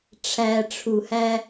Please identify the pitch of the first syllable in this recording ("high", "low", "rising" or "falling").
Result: low